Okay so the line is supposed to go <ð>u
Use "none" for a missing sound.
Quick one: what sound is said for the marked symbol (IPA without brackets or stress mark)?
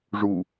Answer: ʐ